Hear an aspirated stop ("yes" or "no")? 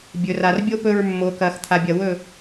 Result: yes